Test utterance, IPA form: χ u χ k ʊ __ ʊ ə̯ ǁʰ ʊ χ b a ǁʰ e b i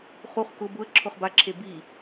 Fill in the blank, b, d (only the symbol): b